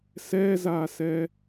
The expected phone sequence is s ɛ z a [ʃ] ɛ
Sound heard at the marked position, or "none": s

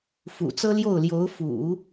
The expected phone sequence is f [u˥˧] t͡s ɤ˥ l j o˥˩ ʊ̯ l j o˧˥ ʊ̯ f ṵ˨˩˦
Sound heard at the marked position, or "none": ṵ˨˩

